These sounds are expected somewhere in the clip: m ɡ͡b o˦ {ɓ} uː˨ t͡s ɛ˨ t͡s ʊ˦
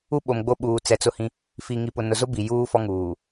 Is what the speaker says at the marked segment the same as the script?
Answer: yes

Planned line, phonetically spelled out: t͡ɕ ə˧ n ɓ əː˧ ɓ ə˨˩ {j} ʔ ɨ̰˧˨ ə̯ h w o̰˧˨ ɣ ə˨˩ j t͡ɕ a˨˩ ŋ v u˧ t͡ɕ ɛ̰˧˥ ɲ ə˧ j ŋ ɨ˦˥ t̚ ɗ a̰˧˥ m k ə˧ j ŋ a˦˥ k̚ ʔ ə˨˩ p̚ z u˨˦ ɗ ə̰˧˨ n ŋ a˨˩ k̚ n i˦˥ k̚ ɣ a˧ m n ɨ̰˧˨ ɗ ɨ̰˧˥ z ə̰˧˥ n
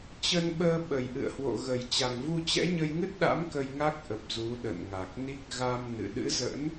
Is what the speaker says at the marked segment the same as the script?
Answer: yes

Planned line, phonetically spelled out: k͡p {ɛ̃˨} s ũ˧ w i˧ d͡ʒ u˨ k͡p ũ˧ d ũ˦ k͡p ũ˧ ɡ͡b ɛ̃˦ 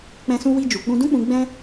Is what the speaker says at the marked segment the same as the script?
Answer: no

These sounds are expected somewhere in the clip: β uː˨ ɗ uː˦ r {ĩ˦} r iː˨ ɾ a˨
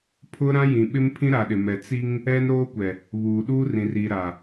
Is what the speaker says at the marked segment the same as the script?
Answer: no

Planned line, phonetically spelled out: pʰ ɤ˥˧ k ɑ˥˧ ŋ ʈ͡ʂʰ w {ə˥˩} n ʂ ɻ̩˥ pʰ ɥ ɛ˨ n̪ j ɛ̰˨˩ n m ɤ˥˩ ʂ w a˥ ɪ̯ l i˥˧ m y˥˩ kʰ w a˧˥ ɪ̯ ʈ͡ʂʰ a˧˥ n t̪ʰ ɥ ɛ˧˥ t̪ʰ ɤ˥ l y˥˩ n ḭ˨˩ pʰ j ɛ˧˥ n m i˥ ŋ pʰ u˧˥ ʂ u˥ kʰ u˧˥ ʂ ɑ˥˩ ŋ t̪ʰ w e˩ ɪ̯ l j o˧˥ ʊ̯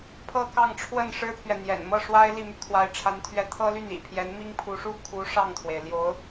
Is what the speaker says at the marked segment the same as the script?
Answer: yes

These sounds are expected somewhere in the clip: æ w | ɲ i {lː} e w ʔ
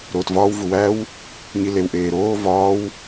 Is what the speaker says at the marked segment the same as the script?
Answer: no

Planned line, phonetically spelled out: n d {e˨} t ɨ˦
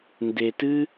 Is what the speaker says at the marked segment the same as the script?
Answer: yes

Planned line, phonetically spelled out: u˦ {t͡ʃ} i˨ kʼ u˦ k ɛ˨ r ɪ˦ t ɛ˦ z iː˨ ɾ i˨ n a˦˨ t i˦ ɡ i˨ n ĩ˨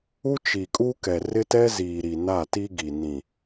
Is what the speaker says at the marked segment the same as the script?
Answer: yes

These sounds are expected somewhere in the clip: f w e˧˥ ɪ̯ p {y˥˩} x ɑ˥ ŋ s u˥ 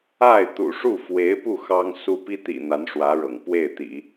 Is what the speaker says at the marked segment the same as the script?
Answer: no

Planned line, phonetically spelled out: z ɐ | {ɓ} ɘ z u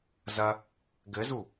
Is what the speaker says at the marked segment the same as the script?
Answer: no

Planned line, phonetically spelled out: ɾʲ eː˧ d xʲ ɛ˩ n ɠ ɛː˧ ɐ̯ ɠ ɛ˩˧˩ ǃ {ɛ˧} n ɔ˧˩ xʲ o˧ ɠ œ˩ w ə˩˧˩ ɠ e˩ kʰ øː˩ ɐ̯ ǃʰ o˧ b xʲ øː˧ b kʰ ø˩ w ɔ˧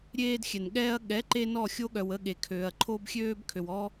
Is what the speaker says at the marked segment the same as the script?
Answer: no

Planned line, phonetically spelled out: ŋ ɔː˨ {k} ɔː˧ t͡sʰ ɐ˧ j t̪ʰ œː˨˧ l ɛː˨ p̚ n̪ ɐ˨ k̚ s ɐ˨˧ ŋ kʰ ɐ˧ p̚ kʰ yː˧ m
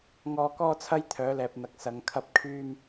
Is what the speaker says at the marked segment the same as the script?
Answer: yes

